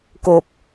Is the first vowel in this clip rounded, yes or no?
yes